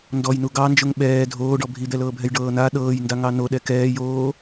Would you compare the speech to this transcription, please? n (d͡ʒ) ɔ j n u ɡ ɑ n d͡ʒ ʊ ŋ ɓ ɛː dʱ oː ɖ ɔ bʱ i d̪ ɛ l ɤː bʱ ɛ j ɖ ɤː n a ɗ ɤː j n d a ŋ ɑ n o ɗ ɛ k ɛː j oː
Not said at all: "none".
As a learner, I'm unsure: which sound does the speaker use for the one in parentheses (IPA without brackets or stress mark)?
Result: d